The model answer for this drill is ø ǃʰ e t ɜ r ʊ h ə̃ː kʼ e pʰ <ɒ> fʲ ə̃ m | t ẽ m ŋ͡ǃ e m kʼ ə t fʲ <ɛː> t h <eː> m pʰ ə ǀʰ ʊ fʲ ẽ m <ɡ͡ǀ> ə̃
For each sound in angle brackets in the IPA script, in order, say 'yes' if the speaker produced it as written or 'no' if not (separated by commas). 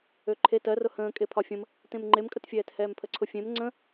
yes, yes, no, no